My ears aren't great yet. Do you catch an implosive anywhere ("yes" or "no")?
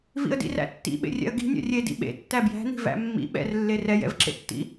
yes